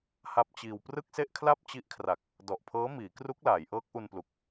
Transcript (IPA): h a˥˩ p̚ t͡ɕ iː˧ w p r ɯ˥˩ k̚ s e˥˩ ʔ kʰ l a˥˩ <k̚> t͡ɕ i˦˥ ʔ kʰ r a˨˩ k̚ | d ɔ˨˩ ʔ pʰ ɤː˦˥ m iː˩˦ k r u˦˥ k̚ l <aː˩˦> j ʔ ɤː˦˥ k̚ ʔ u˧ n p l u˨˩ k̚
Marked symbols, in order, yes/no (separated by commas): no, yes